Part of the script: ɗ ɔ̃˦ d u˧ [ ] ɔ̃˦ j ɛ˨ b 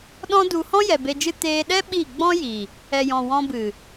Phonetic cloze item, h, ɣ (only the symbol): h